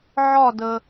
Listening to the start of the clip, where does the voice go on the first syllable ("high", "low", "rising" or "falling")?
falling